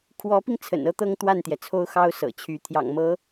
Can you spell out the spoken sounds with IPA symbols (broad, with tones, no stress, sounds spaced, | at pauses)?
kʰ w ɔ˧˥ p i˧ ŋ t͡sʰ ə̰˨˩ n ɤ˥ t̪ ɤ˥ ŋ t̪ w a˥˩ n t̪ j ɛ˩ t͡sʰ o˥ ʊ̯ x ɑ˥ ʊ̯ s ɤ̰˨˩ t͡ɕʰ y˧˥ t̪ʰ j ɑ̰˨˩ ŋ m ɤ˧˥